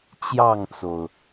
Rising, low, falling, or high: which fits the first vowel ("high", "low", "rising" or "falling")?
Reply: falling